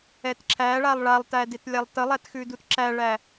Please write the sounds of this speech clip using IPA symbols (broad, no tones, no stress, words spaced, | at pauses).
ɛtǁʰæɭalˠ ɭalˠtædet lʲalˠtəlˠætxʉ dutǁæɭæ